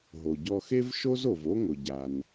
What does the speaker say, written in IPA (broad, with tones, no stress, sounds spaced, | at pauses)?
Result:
ɦ o˩ ɟ ɔ˧ x e˥ v ʃ o˥ z o˩ v o˥ ŋ ʊ˩ ɟ a˩ n